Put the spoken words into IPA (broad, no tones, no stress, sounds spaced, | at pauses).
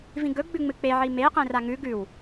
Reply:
v ĩ ɡ ɵ ɡ͡b ʉ ŋ͡m ɨ k͡p e ʕ i m e q ẽ r a ŋ ʉ ɡ ʉ w